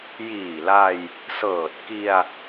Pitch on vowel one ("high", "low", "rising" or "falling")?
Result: low